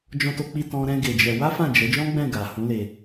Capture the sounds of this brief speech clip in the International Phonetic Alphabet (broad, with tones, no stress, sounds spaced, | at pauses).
d͡ʒ ɔ̃˧ t o˧ k͡p i˧ t ɔ̃˦ ɾ ɛ̃˦ ɡ e˧ d͡ʒ ɛ˧ w a˦ f ã˦˨ d͡ʒ ɛ˨˦ d͡ʒ ɔ̃˦ ɡ͡b ɛ̃˦˨ ɡ a˨ h ũ˨˦ l e˧